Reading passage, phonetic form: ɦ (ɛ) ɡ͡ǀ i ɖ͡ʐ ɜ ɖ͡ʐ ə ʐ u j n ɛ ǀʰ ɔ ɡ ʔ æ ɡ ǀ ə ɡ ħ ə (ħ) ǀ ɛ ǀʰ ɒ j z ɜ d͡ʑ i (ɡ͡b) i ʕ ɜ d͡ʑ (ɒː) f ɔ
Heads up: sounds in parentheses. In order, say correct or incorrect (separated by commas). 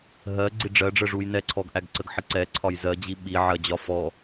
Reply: incorrect, incorrect, incorrect, incorrect